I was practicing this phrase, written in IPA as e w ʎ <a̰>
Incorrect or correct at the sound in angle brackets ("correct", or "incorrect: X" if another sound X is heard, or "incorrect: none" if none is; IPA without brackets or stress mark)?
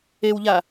incorrect: a